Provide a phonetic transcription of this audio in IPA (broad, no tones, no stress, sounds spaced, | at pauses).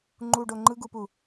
ŋ͡ǃ u ɖ o ŋ͡ǃ ɯ ɡ u p u